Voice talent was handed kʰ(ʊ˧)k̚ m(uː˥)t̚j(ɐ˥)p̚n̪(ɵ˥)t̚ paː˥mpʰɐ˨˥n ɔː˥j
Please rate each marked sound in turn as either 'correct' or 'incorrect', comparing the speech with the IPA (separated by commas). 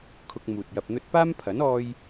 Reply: correct, incorrect, incorrect, correct